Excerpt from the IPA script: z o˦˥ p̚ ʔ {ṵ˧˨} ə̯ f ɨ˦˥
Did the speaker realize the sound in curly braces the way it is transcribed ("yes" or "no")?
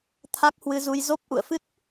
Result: yes